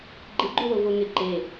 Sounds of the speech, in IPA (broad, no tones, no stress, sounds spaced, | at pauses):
ɡ͡ǃ ɪ ɡ͡ǃ u w o v o ŋ ɪ ǃ e